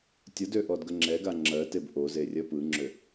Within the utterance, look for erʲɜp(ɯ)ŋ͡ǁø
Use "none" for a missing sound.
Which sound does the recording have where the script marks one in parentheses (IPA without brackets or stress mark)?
ɯ